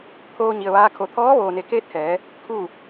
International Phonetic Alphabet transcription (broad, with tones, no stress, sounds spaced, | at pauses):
t̪ʰ oː˧ ɲ i˩ ə̯ ʋ aː˧ kʰ o˩˧ t̪ʰ ɔː˧˥ ʋ oː˩ n e˩˧ k eː˧˥ t̚ h ɛː˩˧ | kʰ uː˥˨